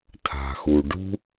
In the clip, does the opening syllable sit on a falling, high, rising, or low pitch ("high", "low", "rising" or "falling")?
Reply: low